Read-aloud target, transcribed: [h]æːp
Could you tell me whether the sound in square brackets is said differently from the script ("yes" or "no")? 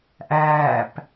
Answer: yes